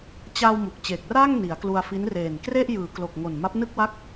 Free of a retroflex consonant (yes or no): yes